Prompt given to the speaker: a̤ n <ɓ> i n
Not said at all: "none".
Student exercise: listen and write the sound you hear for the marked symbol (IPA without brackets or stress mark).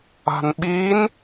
ɓ